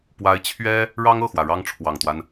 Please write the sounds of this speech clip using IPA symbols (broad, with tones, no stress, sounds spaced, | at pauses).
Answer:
p w a˧˥ ɪ̯ t͡ɕʰ ɥ ɛ˥ | ɻ ɑ˥ ŋ ɤ˥˩ x w ä˩ ɻ ɑ˥ ŋ ʈ͡ʂʰ w ɑ˨˩ ŋ t̪ w a˦ n